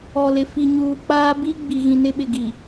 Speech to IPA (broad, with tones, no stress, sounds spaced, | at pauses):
ɔ˨ l ɪ˨ f i˨ ɲ uː˨ k͡p aː˦ b i˦ ɡ͡b i˨ ɣ ĩ˨ n ɪ˦ ɓ ɪ˨ ɡ i˨